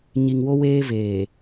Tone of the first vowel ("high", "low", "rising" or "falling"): low